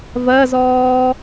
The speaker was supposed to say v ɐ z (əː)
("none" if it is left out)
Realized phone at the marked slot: ɔː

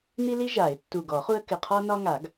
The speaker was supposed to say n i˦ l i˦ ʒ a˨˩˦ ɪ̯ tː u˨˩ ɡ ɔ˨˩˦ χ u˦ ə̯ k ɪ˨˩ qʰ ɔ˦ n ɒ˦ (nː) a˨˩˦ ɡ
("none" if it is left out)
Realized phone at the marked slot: ŋ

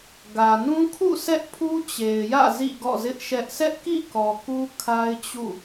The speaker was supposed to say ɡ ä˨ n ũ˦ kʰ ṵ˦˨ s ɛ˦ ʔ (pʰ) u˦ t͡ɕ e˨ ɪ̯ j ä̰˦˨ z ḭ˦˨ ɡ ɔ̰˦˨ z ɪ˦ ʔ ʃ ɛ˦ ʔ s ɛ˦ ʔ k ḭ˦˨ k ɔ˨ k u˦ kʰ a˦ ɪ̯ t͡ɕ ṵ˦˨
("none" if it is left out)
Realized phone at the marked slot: pʰ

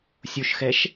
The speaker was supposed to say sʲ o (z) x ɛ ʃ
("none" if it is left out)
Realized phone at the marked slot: ʃ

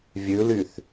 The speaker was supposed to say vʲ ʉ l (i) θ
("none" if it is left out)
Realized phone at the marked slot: y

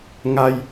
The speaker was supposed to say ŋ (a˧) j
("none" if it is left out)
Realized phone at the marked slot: a˧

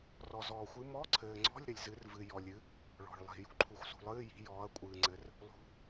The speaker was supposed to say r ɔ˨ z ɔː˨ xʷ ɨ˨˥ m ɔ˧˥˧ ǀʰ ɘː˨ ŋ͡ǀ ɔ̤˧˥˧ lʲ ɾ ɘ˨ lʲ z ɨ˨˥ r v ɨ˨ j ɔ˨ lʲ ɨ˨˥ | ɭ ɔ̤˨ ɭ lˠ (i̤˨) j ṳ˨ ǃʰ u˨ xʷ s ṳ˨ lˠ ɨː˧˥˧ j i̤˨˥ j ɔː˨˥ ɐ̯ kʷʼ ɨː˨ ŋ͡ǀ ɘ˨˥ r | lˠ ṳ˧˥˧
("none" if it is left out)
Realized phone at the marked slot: i̤˨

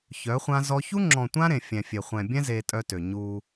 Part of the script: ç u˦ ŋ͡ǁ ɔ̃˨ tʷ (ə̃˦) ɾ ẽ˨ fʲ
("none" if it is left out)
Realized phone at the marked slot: ã˦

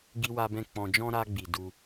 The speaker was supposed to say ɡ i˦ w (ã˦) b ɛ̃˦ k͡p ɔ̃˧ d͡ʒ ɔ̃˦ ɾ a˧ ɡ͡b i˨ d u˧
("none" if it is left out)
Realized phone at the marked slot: a˦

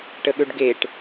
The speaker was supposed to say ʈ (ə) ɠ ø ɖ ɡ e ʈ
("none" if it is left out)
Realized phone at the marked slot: ə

